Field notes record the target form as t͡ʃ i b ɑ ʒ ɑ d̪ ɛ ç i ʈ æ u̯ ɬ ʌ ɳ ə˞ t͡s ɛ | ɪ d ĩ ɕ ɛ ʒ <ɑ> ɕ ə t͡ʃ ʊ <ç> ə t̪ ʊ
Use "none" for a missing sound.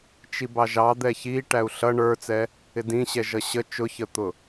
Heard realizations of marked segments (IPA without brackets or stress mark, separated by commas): ʌ, ç